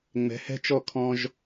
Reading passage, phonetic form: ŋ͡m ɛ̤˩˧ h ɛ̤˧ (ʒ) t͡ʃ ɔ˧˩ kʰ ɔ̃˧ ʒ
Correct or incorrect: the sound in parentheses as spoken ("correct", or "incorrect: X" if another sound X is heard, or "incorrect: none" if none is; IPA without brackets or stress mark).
incorrect: none